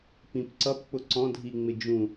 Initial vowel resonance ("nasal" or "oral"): nasal